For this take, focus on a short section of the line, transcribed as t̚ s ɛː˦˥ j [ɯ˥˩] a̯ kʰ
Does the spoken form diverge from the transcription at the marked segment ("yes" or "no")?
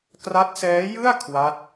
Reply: no